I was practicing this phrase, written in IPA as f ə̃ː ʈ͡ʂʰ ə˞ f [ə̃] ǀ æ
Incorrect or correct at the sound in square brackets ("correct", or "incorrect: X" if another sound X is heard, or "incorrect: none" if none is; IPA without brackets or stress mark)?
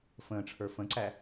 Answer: correct